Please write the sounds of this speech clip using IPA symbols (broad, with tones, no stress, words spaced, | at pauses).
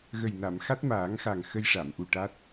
ɣə˨˩j na˨˩˨mxa˦˥t̚ maː˨˩˦ŋxa˨˩ŋ xə˧jʂa˨˩˨mʔu˨˩ ʈa˦˥t̚